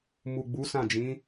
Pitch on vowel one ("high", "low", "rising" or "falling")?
low